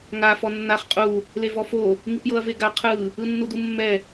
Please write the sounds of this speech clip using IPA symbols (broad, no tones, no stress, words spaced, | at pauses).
ŋa fɔnːaχ qʼu | levɔfo | ŋipjɤɐ̯veɡa qʰɯ | ɯnːudumːɛ